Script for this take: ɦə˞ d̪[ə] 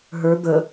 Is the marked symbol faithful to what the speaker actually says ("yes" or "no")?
yes